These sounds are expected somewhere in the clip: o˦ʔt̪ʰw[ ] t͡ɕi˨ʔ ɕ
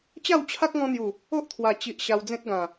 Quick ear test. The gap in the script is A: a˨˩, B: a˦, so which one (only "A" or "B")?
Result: A